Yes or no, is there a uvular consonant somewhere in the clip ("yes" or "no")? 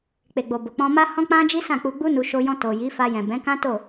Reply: no